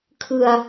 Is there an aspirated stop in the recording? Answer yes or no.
yes